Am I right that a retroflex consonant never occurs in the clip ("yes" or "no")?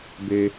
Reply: yes